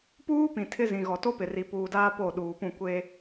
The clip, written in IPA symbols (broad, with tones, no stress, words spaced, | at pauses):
puː˦ pĩ˨tʰɪ˦zĩ˨ɣɔ˨ to˦pɪ˨ri˨ puː˨daː˦ po˦˨ɗuː˨pũ˦˨ kʷe˦